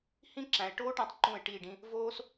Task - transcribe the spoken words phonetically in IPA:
h ĩ˥ ǁ æ̃˩˧ ɪ̯ ʈ oː˥ ʈ æ̃˧ tˤ ǃ ũ˧˩ ɪ̯ ʈ i˧˩ ɖ ĩ˧ | v oː˥ s

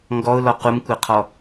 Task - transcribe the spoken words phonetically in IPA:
ŋ ɡ ɔ ʊ̯ l ɔ q u m kʷ ɪ qʰ ɔ

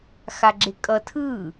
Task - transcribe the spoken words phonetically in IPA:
x a ɡ͡ǁ e kʼ ʌ tʰ ɯ

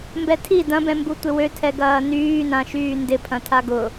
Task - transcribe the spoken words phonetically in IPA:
m b ɛ tʰ i d ɐ̃ b ɛ̃ m b u tʷ ɪ w ø tʰ ɛ ɡ ɐː n yː n ã ʃ yː n d ɪ pʰ ɐ̃ tʰ a ɡ ʊ

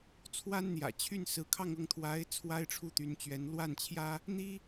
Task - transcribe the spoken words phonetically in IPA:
t͡sʰ w a˥ n n̪ j ä̰˨˩ t͡ɕʰ y˥˩ n s ɹ̩˧˥ kʰ ɑ˥˧ ŋ ɤ˥˩ ŋ t̪ʰ w a˧˥ ɪ̯ t͡sʰ w a˥ ɪ̯ ʈ͡ʂʰ u˥˩ t̪ y˧˥ n t͡ɕ ɥ ɛ˧˥ n l w a˥˩ n t͡ɕʰ j ä˥ | n̪ i˥

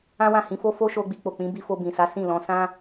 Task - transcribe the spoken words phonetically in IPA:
ã˦ w ã˦˨ h ĩ˧ f o˦ f o˦ ʃ o˧ ɡ͡b i˧ k͡p o˨ k͡p ĩ˨˦ b i˧ f o˧ b ĩ˨ s a˨˦ s ĩ˦˨ l ɔ̃˨˦ s ã˦

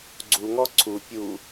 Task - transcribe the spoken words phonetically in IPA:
ɡ͡ǀ u ŋ ɔ ǀʰ u pʲ u

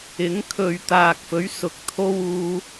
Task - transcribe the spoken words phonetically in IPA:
ɪ˨˥ ŋ kʰ ɵ˨ ɥ t̪ aː˨ k̚ f ɵ˨˥ ɥ s ʊ˨˥ k̚ t̪ʰ o˧ w uː˨

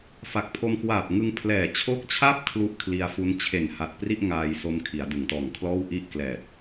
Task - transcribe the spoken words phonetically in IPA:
f a˨˩ k̚ pʰ o˧ m k w aː˨˩ p̚ ŋ ɯ˧ ŋ pʰ l ɛː˨˩ t͡ɕʰ o˦˥ k̚ t͡ɕʰ a˥˩ p̚ kʰ l u˥˩ ʔ kʰ l i˧ a̯ f u˦˥ n t͡ɕʰ e˨˩ n h a˨˩ t̚ p r i˥˩ ʔ ŋ aː˧ j s o˧ m kʰ i˩˦ a̯ d ɯ˩˦ ŋ t ɔː˨˩ ŋ kʰ l ɔː˥˩ w ʔ i˥˩ ʔ k l ɛː˨˩ t̚

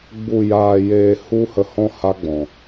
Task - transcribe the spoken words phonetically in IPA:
ɡ͡b u˨ j aː˨ j eː˨ h u˦ h ə˧ h ɔ̃˦ h a˦ ɡ͡b ɔ̃˨

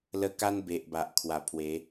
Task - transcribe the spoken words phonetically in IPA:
l ə˧ k a˦ n b e˨ ʔ b a˨ ʔ kʰ w a˨˩ pʰ w e˨˦

